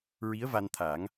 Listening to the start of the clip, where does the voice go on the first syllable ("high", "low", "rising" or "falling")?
rising